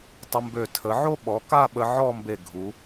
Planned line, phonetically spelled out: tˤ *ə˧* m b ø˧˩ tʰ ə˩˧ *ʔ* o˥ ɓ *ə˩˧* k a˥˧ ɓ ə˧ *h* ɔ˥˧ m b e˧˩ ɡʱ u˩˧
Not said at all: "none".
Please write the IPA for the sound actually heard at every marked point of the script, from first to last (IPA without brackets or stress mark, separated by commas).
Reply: ə˧, ʕ, ɔ˩˧, ʕ